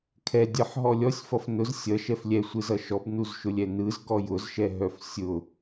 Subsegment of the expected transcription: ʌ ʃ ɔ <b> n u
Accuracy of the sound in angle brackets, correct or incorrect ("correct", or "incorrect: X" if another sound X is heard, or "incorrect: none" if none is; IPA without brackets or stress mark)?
correct